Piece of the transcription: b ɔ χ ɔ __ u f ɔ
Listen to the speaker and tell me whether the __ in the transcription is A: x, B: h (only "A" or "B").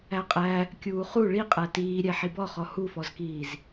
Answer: B